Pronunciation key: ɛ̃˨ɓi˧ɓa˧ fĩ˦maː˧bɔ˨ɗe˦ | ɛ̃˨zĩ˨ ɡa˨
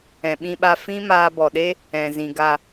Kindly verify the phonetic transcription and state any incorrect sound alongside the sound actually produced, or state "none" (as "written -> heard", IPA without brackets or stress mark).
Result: i˧ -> ĩ˧